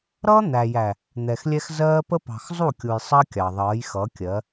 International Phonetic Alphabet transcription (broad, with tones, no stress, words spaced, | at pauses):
ɾʌː˦n̪æ˨ jæ˨ | n̪ɛ˨xlʲɛ˦x zɜː˦pə˦ pɑ̤˨xzˤu˦˨kʲu˨j sˤɜ˦kʲɑ˨ ðˤʌː˨˦jxʌ˨˦kʲɜ˨˦